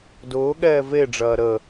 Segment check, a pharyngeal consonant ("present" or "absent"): absent